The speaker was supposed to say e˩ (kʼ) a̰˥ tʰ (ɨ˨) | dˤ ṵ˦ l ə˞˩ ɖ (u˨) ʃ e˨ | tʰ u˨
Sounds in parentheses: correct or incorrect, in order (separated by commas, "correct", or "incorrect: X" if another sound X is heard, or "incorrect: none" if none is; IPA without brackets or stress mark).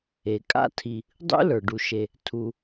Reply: correct, incorrect: i˨, correct